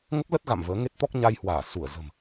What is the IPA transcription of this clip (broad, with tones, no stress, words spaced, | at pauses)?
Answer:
ŋə˦˥p̚lə˦˥t̚ ɣa̰˧˨mvəː˨˦ ŋe˦˥t̚t̪ɔ˦˥k̚ɲa˧jhwaː˧˩ su˧˩ə̯ zə̤˨˩m